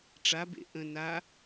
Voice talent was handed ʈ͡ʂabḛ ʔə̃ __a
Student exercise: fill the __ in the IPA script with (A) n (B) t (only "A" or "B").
A